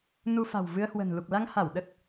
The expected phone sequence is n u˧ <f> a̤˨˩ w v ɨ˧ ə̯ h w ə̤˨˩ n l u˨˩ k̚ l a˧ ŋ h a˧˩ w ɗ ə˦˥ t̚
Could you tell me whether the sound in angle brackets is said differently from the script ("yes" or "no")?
no